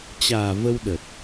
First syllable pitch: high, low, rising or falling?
low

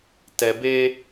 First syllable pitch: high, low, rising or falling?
low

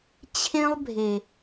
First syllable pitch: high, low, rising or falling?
high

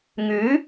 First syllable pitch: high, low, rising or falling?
rising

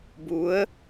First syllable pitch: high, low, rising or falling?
rising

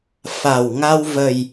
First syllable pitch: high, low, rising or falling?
low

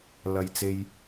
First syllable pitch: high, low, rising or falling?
low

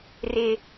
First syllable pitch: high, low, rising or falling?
low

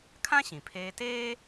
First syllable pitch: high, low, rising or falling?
high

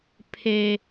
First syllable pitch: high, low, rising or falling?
high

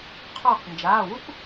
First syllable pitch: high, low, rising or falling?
falling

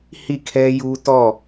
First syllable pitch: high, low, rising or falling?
falling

